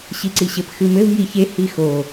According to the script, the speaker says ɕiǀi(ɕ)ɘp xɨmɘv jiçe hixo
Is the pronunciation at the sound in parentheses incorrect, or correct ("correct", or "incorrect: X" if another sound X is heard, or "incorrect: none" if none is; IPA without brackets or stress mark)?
correct